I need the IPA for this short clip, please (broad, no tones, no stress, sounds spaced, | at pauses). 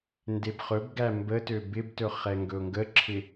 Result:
n d e b χ ɵ b ɡ æ m b ə t ø b ɪ b t ɵ χ ɛ ŋ ɡ ɵ ʊ̯ ŋ ɡ ə ǁʰ ɪ